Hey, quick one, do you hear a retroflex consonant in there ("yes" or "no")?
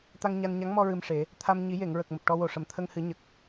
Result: yes